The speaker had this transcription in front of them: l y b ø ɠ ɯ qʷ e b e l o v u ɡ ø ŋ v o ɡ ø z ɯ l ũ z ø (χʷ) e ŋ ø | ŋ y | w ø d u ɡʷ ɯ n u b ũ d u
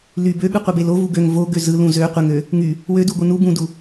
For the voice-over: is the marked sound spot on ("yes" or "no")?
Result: no